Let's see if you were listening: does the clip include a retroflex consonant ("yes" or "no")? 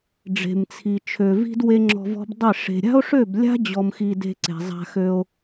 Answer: yes